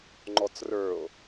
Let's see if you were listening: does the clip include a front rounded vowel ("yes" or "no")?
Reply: no